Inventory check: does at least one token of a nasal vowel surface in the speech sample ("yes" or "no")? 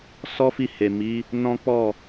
yes